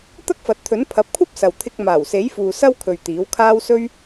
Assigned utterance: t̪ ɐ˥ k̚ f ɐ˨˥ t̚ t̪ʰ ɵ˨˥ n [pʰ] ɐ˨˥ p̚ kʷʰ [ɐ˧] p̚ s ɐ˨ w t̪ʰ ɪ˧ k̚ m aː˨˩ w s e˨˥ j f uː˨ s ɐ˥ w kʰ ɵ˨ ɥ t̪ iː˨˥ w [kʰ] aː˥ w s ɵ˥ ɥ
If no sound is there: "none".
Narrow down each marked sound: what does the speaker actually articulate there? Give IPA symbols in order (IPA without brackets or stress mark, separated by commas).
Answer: pʰ, ɐ˥, kʰ